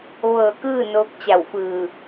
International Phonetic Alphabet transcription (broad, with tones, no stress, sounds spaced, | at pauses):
ʋ ɤː˧˩ k ɯː˥˨ n oː˧ k̚ t͡ɕ a˧˩ w f ɯː˧˩